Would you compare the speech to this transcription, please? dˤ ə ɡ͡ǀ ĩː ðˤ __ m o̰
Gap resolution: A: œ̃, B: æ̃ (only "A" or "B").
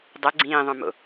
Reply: A